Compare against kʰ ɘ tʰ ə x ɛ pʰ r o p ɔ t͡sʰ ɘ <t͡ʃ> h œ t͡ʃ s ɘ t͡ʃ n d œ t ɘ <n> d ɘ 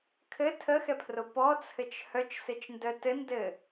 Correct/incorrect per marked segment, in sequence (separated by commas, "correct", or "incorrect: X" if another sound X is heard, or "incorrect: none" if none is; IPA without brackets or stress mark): correct, correct